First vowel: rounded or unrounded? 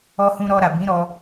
rounded